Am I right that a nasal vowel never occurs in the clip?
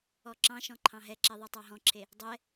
no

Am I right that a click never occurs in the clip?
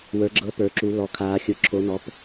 no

